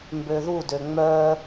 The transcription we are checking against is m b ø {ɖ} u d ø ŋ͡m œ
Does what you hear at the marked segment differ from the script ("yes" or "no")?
yes